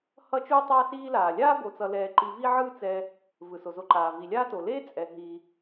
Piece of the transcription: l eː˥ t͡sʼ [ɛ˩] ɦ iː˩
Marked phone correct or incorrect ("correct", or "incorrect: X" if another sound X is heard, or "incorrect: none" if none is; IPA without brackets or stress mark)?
correct